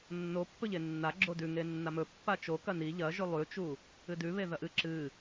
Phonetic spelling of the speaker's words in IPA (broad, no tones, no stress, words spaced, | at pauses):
nːopːɵʎe nːaɡ͡ǁo dʉ ŋenːamɵ pːat͡ʃo kɐni ʎɐʒʉ lˠʉt͡ʃu | ɨdʉβe ðɐʔɨ ǁɨ